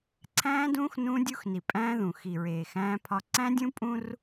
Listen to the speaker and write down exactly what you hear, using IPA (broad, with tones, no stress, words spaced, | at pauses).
ǀʰæ̃ː˦dũː˦x nũː˦dʲu˦xni˨ pʼæ̃ː˦ðũ˨ xi˨ɹeː˨xæ̃ː˦pʰɒ˦ ǀæ̃˦dʲũ˦pʼũ˦r